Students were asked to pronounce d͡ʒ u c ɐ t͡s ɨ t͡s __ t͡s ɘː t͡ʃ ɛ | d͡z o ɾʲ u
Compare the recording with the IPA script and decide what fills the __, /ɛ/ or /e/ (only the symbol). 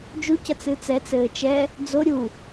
ɛ